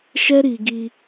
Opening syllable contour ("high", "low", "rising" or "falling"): high